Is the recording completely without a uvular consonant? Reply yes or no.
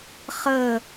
no